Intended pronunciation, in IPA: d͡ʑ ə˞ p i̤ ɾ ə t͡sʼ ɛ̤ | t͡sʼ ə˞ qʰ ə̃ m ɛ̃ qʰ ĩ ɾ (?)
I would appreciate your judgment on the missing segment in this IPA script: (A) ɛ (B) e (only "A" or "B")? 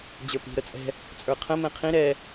A